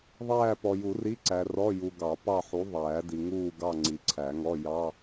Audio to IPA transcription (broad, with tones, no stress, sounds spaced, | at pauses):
ðˤ æː˥˧ p ɔ˨ j u˨˩˦ r i˧˥˧ ǀ æ˨ r ɔ˧˥˧ j u˨ ɡ ɑ˨˩˦ p ɑ˥˧ ħ u˨˥ ðˤ æː˨˩˦ d i˨ ŋ uː˥˧ ɡ ɑ˥˧ ŋ͡ǀ i˨ ǀʰ æ˨˩˦ ŋ ɔ˧˥˧ j ɑ˧˥˧